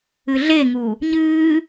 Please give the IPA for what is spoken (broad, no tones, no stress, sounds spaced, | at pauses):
ɨ ɮ e ŋ u | ɲ ɨː